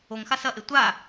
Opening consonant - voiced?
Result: yes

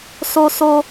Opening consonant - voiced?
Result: no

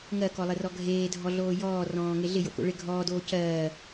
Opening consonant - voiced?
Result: yes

